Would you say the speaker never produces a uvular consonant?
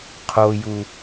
no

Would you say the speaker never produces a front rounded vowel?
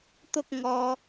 yes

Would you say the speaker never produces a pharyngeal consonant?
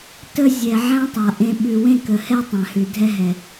no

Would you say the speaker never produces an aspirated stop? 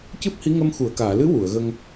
yes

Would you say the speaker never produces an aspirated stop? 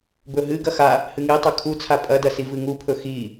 no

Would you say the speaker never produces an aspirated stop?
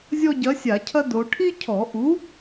no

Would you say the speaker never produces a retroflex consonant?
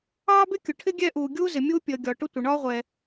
no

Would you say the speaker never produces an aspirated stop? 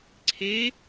no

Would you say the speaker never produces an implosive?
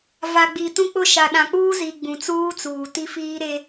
no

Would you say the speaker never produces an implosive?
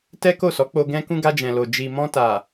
yes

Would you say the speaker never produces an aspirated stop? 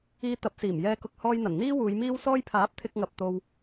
no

